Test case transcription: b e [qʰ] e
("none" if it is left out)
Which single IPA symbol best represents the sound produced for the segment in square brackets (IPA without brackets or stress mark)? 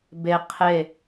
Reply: qʰ